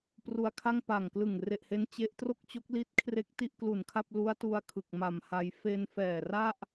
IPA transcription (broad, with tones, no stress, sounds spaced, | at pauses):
p r u˧ a̯ kʰ a˥˩ ŋ p a˨˩ ŋ k l ɯ˨˩ ŋ r e˨˩ ʔ h e˦˥ n t͡ɕ e˦˥ ʔ t r o˥˩ k̚ t͡ɕ o˦˥ k̚ l i˦˥ t̚ kʰ r e˦˥ k̚ t i˥˩ ʔ k l u˨˩ n kʰ a˥˩ p̚ l u˦˥ a̯ t u˧ a̯ kʰ ɯ˨˩ k̚ m a˨˩ m h a˧ j f e˧ n f ɛː˨˩ r a˥˩ ʔ